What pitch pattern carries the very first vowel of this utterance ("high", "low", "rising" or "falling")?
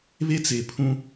high